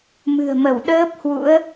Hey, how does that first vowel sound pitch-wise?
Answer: low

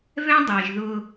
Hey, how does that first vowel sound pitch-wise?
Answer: high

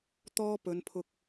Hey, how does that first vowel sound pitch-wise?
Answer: high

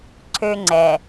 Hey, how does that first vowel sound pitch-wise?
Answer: high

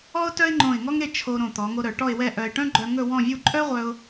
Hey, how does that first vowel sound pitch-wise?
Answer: high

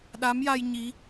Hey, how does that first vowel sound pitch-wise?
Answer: rising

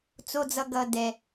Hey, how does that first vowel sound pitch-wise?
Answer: low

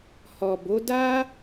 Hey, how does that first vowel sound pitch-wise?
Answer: low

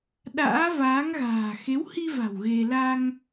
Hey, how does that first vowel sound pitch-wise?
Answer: rising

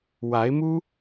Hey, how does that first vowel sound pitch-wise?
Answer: rising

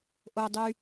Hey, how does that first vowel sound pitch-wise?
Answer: high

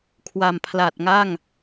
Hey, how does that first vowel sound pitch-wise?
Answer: low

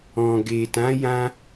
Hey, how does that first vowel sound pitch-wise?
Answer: low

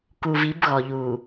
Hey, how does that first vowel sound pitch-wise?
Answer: low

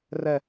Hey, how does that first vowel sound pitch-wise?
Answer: low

